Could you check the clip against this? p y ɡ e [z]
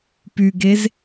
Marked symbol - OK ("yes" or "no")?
yes